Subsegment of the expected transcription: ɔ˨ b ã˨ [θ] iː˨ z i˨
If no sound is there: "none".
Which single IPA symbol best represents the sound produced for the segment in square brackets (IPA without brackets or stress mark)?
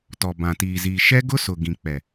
t